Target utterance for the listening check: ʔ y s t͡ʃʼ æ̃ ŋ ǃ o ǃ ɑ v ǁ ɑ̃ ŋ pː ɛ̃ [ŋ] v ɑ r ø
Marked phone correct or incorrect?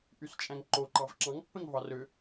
correct